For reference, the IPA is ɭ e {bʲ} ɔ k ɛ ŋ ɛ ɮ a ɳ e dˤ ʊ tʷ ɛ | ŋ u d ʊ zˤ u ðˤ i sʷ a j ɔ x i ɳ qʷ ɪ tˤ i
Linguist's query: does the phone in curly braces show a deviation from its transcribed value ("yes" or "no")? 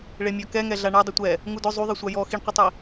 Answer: yes